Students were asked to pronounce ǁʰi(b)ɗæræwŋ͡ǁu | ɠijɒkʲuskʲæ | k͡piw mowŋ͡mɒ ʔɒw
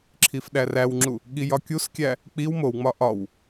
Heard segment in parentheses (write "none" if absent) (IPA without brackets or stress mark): f